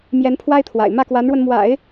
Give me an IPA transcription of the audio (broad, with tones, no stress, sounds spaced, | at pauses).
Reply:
m j ɛ˧˥ n pʰ w a˥ ɪ̯ t̪ʰ w a̰˨˩ ɪ̯ m ä˥˩ k w a˧˥ n ɻ w ə˧ n m w a̰˨˩˦ ɪ̯